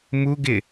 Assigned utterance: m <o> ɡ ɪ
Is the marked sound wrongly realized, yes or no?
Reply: yes